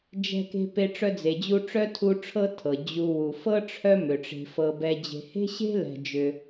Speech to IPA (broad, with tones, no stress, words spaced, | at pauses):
d͡ʒɛ̤˦ke̤˦ pe˦ ʈ͡ʂœ˦d͡ze˨d͡ʑu˦ʈ͡ʂœ˥ tʰu˦ ʈ͡ʂʰɤ˦ tʰɤ˩ d͡ʑu˨wu˩ fɤ˥ʈ͡ʂʰœ˦ mʏ˩ʈ͡ʂe̤˨fɤ˨ bɛ˨d͡ʑe̤˨he̤˥ɕe̤˥ lɛ̤˨d͡ʒʏ˨